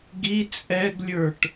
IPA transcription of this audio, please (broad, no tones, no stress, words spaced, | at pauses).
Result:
ɡi t͡sʼɛɡlʲə˞ʈ